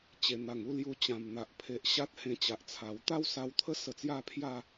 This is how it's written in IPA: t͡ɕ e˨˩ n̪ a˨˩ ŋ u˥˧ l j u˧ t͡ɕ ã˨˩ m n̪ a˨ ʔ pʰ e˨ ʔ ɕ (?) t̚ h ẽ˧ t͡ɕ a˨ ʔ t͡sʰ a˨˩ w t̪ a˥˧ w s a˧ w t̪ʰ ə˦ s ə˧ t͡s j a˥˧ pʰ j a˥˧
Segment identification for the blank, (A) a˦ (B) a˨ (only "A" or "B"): A